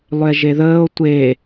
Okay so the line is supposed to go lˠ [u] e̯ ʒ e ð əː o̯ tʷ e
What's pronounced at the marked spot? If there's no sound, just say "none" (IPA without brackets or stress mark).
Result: ʏ